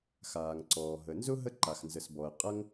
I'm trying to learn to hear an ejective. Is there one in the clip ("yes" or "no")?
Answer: yes